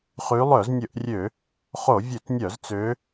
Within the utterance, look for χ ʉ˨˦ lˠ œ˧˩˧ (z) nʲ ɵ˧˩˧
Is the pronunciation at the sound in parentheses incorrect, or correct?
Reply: correct